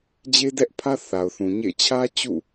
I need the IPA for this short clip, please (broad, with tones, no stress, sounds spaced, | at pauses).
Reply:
d͡ʑ e˦ d ɛ˦ ʔ pʰ ä˦ θ a˨ ʊ̯ θ ũ˨ ɲ ḛ˦˨ ɪ̯ t͡ɕʰ ä˦ t͡ɕ ṵ˦˨